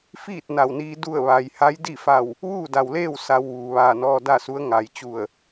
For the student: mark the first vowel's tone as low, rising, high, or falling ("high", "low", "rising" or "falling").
falling